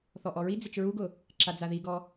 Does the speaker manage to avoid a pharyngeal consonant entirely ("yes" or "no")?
yes